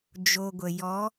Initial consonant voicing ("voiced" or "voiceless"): voiced